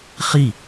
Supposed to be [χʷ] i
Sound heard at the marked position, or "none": χ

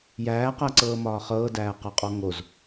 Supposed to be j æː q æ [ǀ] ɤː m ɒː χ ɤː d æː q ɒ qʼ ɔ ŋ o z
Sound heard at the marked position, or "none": ǀ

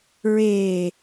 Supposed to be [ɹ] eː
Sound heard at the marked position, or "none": ɹ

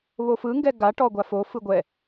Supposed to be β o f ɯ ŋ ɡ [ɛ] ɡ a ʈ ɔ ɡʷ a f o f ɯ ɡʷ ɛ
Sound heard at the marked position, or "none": ɛ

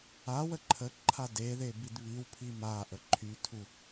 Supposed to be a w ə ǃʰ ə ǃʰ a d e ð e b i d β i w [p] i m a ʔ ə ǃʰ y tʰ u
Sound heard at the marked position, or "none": pʰ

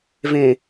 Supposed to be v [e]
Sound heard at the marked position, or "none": ẽ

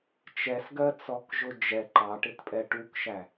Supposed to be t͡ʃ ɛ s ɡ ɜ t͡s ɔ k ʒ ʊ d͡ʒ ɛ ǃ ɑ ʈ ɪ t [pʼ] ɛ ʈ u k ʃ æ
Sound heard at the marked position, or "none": pʼ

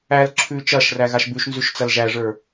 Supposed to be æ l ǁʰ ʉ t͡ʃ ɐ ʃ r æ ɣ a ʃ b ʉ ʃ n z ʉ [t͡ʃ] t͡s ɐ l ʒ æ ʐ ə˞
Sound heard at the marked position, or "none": ʃ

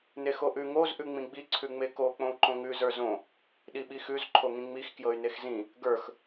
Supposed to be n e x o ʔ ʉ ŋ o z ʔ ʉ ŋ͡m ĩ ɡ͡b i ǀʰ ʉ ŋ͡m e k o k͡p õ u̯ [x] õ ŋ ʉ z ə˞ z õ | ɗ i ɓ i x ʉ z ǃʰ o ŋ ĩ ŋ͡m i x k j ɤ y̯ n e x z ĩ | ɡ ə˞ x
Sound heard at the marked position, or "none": ǃ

